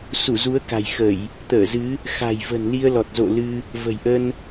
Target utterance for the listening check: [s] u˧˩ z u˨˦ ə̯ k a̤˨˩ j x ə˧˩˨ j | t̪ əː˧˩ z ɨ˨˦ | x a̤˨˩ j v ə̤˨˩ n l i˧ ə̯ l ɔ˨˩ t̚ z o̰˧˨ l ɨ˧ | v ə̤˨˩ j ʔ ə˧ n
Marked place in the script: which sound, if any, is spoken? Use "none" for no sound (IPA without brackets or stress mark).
s